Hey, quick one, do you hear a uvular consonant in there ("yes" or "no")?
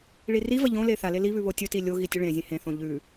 no